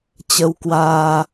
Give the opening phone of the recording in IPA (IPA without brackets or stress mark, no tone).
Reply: t͡ɕ